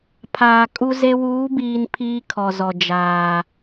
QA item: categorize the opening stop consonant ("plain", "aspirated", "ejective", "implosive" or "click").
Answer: aspirated